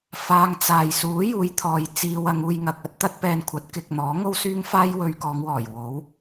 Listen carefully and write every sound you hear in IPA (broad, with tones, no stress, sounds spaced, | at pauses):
f aː˧ ŋ t͡s aː˨ j s uː˨˥ j uː˨˧ j t̪ʰ ɔː˨ j t͡s iː˧ w ɐ˨˧ ŋ uː˧ j ŋ ɐ˧ k̚ ɐ˥ t̚ t̪ ɐ˥ t̚ p ɛː˧ n kʷʰ ɐ˨˥ t̚ k ɪ˨ k̚ n̪ ɔː˨˥ ŋ o˥ w s yː˥ ŋ f aː˥ j w ɵ˧ ɥ k ɔː˨˧ ŋ w ɔː˨˩ j w o˨˥ w